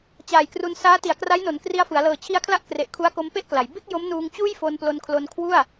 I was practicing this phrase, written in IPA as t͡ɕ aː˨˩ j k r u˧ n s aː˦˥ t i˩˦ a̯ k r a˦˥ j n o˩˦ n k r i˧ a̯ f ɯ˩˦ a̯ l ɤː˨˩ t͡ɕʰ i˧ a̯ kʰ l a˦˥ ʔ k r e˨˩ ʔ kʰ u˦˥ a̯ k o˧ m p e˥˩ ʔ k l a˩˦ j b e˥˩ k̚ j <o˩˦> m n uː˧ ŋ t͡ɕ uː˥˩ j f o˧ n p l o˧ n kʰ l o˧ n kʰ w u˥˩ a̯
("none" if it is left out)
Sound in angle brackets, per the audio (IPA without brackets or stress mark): o˦˥